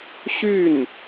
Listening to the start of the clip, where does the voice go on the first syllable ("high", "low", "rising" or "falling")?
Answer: falling